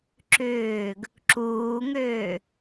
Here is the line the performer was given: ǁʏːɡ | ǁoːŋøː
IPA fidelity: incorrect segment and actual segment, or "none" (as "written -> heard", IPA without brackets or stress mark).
oː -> uː